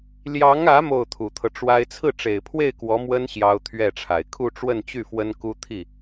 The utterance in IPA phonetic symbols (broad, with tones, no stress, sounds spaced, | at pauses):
l j ɑ˧˥ ŋ ä˧˥ m o˥˩ ʊ̯ t̪ʰ u˨˩ t̪ʰ ɤ˦ ʈ͡ʂ w a˥ ɪ̯ t͡sʰ ɹ̩˥˩ ʈ͡ʂ e˨˩ ɪ̯ pʰ w e˥˩ ɪ̯ k w ɔ˧˥ m w ə˥ n ɕ j ɑ˥ ʊ̯ t̪ʰ ɥ ɛ˥˩ ʈ͡ʂʰ a˨˩ ɪ̯ kʰ u˥˧ ʈ͡ʂ w ə˥˧ n t͡ɕ y˥˩ f w ə˥ n k u˥ t̪ʰ i˥˩